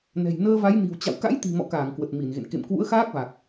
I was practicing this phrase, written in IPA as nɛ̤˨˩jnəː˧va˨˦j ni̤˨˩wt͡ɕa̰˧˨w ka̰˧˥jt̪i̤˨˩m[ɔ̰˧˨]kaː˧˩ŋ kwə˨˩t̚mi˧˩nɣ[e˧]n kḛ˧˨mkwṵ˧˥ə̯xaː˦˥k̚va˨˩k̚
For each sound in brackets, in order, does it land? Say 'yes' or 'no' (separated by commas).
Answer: yes, no